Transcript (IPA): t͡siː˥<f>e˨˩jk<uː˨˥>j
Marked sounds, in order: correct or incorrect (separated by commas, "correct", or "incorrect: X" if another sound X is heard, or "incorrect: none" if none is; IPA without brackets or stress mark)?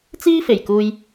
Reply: correct, incorrect: uː˧